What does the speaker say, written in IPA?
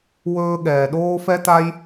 w ɵː˦ ɠ ɛː˩ ɗ oː˥ f ɛ˥ t a˥ j

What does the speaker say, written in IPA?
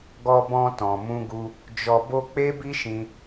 ɡ ɔ˧ b ɔ̃˧ t ɔ̃˨ m ũ˧ ɡ u˧ | d͡ʒ ɔ˧ b o˦ k͡p e˦ b i˦ ʃ ĩ˧

